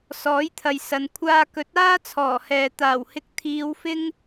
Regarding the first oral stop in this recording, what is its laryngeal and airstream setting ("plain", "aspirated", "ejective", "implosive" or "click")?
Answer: aspirated